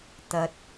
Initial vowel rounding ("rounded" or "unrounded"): unrounded